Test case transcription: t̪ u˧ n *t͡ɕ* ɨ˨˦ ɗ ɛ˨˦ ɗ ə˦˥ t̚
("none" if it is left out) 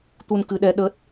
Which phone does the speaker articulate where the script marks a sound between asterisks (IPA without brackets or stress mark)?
k